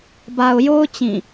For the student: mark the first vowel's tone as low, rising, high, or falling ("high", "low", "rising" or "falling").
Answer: low